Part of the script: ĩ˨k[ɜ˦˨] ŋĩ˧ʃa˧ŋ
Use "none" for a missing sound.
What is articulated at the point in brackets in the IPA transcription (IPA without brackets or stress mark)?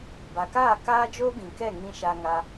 ɛ˦˨